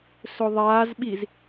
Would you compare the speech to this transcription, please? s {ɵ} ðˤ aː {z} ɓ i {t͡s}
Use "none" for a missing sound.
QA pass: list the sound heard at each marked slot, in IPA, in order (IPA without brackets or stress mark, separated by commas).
ɵ, z, z